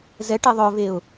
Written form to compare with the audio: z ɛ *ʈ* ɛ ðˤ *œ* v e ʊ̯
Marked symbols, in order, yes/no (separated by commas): yes, yes